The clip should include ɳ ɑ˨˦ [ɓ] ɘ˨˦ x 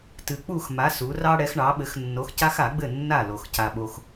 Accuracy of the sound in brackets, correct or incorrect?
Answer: correct